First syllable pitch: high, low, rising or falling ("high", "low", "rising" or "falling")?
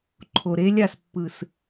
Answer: low